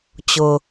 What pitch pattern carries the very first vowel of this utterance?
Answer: high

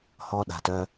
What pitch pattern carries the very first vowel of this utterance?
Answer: high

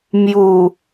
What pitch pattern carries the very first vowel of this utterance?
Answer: low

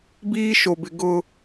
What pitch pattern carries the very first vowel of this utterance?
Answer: high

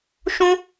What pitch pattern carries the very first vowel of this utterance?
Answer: high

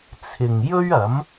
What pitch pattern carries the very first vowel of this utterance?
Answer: low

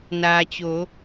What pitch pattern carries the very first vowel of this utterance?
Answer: low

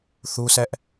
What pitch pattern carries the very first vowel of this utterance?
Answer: high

